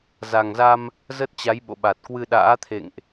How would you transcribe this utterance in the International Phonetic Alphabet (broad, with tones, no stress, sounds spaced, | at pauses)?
z a˨˩ ŋ z a˧ m | z ə˦˥ t̚ t͡ɕ a˨˦ j ɓ o̰˧˨ ɓ a˨˩ t̚ k w ɨ˧ ɗ a̰ː˧˥ t̪ʰ ḛ˧˨ ŋ ʔ